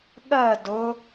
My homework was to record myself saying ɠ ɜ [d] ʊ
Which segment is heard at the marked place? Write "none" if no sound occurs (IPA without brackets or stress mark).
d